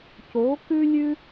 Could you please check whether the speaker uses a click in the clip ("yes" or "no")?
no